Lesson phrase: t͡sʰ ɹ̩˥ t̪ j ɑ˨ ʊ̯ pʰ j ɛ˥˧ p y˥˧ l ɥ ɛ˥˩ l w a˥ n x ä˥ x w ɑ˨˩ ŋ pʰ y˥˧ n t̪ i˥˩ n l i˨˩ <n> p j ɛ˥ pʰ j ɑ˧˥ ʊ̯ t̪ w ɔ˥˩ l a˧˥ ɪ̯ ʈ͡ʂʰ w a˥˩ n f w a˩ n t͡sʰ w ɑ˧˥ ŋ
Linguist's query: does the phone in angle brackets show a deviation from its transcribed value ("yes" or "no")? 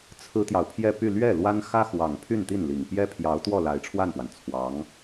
yes